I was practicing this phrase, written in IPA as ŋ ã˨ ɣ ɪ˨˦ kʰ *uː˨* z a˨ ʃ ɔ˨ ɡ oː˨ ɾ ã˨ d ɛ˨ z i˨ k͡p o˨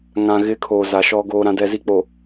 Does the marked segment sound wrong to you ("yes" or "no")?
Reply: yes